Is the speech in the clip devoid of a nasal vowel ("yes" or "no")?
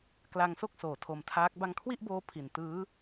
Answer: yes